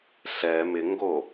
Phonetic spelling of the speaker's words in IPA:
ɬ ɛ m ɪ ŋ ɡ o

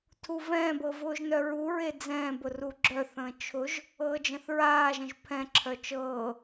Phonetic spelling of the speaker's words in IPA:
tʰ u v ɛ̃ː b ɤ v ʊː ʒ n œ ɹ u ɹ e d͡z ɛ̃ː b ʊ r u ɡ͡ǁ œ θ ə̃ː t͡ʃʰ ʊ ʒ | ɤː d͡ʒ ə̃ θ ɹ aː ʒ ə̃ ʒ pʰ ɛ̃ ǁʰ œ t͡ʃ ɤː

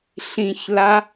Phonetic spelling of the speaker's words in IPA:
ɬ ĩ ç l a

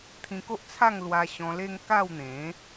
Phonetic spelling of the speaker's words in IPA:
t̪ʰ ĩ˧ k o˦ ʔ t͡sʰ a˥˧ ŋ l w a˧ ɕ ɔ̃˧ l e˦ ŋ k a˥˧ w n̪ ẽ˨˦

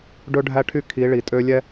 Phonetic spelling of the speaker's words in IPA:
ɖ ɵ˦ ɖʱ æ˦ ʈʰ y˦ kʰ i˨˦ ɭ i˨ tʼ ø˦ lʲ ɛ˦

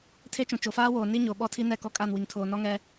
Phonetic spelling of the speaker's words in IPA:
tʰ e˦ t͡ʃ ũ˨ t͡ʃ o˨ f aː˦ w oː˨ n i˦ ɲ o˨ ɓ ɔ˦ tʰ i˦ n ɛ˦˨ k ɔ˦ kʼ a˦˨ n w i˨ ŋ tʰ oː˨ n ɔ˦ ŋ ɛ˦

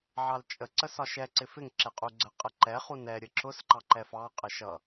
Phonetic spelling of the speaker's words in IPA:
ʕ ɑ l t͡ʃʼ ə ǀ ə s ɒ ʃ ɛ ǀ ɪ f ɪ ŋ ǁ ɛ qʼ u ɡ͡ǀ ə qʼ ə ǃ ɛ χ u n ɛ ɾʲ ə ǁ ʊ s ǃ ɑ ǃ ɛ f ɑ qʼ ə ʃ ʌ

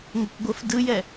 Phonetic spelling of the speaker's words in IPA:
ŋʷ ə kʷ ɡʷ ə f d ɯ j ɛ

